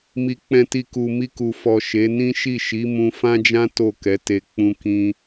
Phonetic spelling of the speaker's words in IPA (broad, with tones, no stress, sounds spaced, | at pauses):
m i˨ k͡p ɛ̃˨ t i˨ k u˨ m i˧ k u˨ f ɔ˨ ʃ e˨˦ n ĩ˦ ʃ i˦˨ ʃ i˨˦ m ũ˧ f ã˦ d͡ʒ ã˦ t o˦˨ k ɛ˨˦ t e˧ k͡p ũ˧ k ĩ˧